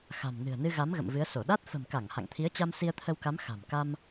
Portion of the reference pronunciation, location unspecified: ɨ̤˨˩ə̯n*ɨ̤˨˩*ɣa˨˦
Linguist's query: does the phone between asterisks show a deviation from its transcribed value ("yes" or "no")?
yes